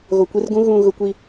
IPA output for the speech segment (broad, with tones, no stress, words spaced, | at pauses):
ɣo˨kʷi˦rɡũ˦ ɣũ˨ ɣʊ˦kʷi˦